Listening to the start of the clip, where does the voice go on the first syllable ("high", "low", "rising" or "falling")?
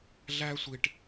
high